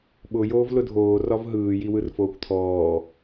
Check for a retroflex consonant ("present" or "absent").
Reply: absent